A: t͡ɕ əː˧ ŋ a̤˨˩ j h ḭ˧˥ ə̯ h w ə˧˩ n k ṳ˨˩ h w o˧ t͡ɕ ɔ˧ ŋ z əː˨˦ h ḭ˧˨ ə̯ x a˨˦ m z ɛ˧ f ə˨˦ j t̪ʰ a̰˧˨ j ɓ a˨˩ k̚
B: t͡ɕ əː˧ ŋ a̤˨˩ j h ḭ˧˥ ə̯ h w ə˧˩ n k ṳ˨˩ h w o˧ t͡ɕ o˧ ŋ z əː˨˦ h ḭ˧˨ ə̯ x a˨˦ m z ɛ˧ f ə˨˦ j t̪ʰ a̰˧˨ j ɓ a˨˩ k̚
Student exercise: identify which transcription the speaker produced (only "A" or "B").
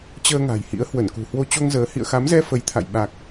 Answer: B